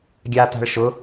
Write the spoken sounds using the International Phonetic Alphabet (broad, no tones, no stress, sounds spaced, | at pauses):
ɡʲ a t a̤ ɭ ʃ ʊ